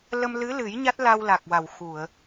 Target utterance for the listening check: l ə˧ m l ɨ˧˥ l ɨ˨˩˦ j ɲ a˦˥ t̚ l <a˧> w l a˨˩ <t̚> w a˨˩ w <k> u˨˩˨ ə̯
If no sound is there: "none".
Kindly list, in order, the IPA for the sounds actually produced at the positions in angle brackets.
a˧, k̚, x

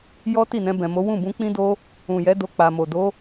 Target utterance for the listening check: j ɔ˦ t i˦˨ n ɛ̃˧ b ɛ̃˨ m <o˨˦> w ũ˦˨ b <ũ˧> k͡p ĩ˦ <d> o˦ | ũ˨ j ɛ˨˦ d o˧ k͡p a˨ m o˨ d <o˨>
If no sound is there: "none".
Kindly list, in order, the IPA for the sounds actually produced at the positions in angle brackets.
o˨˦, ũ˧, d, o˨˦

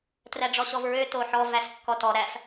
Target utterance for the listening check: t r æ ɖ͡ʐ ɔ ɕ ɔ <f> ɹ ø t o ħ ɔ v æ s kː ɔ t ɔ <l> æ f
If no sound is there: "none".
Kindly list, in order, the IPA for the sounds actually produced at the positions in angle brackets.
v, ɾ

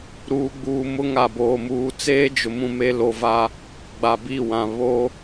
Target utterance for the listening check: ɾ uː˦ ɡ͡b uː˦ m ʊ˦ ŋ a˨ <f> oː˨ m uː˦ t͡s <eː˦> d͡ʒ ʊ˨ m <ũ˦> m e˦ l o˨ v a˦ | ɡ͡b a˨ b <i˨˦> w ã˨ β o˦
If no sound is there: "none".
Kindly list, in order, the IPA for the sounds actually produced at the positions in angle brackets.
b, eː˦, ũ˦, i˦˨

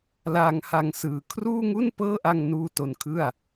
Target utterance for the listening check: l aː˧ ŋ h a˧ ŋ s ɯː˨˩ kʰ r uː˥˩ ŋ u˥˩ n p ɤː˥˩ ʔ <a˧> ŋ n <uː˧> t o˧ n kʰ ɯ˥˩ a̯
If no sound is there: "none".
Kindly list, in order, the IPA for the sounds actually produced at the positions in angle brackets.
a˧, uː˧

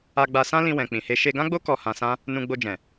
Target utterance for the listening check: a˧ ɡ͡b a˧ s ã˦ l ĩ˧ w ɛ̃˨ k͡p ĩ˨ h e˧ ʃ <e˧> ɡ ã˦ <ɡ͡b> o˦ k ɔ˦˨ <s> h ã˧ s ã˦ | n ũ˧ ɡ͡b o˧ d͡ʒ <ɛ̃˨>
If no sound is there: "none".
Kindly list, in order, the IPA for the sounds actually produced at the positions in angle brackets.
e˧, ɡ͡b, none, ɛ̃˨

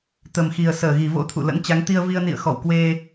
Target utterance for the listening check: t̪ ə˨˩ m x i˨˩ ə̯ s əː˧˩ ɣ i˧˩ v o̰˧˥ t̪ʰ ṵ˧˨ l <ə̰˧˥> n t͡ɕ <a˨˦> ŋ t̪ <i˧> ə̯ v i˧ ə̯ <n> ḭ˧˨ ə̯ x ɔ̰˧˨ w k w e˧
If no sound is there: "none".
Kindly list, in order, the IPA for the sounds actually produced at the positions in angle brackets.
ə̰˧˥, a˨˦, i˧, n

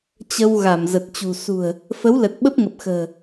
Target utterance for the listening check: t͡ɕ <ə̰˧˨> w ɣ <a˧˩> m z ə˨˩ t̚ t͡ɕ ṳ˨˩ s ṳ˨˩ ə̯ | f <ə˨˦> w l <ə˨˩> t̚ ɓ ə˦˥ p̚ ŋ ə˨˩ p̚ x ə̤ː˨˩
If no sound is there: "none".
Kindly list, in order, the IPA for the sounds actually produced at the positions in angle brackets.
ə˧, a˧˩, ə˨˦, ə˨˩

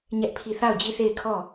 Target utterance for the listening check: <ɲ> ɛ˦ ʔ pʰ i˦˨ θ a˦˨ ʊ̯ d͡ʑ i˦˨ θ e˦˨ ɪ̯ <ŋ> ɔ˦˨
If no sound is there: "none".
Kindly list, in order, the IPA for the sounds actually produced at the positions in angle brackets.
ɲ, kʰ

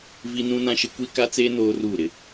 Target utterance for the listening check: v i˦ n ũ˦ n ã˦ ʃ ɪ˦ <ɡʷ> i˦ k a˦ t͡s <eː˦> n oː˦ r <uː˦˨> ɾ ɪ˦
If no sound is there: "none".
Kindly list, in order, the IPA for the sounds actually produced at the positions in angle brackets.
kʷ, eː˦, uː˦˨

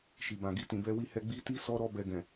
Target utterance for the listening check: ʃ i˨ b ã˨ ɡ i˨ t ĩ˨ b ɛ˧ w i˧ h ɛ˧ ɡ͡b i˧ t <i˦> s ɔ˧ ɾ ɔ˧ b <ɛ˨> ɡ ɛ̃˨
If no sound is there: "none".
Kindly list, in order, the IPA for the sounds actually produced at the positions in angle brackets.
i˦, ɛ˨

